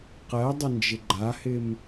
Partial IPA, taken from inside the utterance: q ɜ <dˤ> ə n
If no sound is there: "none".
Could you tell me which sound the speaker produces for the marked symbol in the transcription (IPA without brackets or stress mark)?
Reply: dˤ